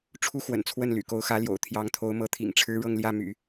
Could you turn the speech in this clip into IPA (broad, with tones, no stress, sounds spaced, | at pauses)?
ʈ͡ʂʰ u˥ x w ə̰˨˩ n t͡sʰ w ə˥˩ n l y̰˨˩ k o˧˥ ʊ̯ x ä˧˥ l j o̰˨˩ ʊ̯ t̪ʰ j ɑ˧˥ ŋ t̪ʰ o˧˥ ʊ̯ m ɤ˧˥ t̪ʰ ḭ˨˩ ŋ ʈ͡ʂʰ ɻ̩˥ ɻ ɤ˥˧ ŋ l j ä˥˩ m y̰˨˩˦